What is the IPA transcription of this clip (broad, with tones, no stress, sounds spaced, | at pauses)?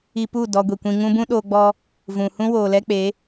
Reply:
i˧ p u˦˨ d ɔ˧ ɡʷ i˨ kʷ ĩ˧ ŋ ũ˦ b ũ˦ ɗ oː˧ ɡ͡b ɔ˧ | v ũ˨ h ũ˦ w oː˨ l ɛ˦ k͡p e˨˦